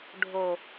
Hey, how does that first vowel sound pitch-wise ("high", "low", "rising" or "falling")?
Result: low